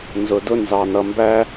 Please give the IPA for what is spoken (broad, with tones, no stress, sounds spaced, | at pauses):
n z ʊ˩ d ʊ˧ n z ɑ˩ n ʌ˩ m b æ˧